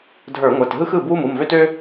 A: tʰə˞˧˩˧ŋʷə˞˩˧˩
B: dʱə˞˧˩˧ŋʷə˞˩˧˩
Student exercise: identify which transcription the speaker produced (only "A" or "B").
B